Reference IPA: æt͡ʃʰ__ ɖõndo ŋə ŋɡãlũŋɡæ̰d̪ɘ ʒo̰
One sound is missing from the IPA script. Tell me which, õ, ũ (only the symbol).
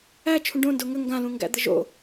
ũ